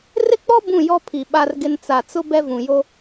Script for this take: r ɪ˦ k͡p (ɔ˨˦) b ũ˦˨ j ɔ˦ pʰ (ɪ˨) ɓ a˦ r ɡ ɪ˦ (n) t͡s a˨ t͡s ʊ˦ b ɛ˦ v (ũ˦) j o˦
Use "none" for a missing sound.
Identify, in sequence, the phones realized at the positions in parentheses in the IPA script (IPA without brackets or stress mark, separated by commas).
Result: ɔ˦, i˨, n, ũ˨